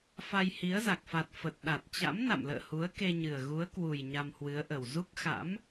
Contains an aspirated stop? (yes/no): no